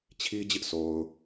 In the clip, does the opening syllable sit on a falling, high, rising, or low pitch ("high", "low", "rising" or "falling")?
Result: high